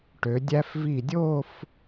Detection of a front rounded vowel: present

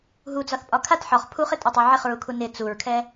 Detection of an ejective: present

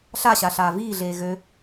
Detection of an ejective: absent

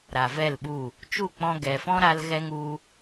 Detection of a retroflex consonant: absent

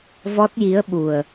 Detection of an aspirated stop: absent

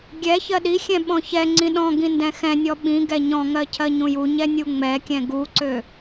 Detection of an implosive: present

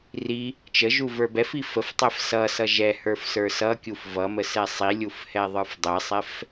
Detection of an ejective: absent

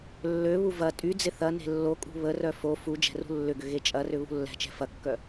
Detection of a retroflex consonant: absent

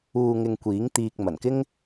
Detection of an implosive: absent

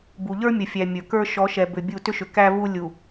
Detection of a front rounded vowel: present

